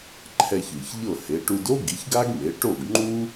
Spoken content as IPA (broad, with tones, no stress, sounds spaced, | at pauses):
ǃʰ ɛ˧ ç ɯ˩ ç ʎ ɤ˥˩ h e˩˥ ʈ u˧ d o˥ ɡ i˩˥ ç ɡ a˥ ɡ m e˩˥ ʈ o˥˩ ɡ ŋ͡ǃ u˥